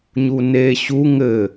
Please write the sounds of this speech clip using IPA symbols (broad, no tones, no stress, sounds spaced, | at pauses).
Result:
ɲ u n e ɕ u ŋ ɘ